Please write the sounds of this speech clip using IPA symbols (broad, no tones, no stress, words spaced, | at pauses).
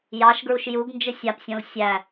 jɑʃɡɹuʃ juɡnd͡ʒɨ sʲapsʲõl sʲæ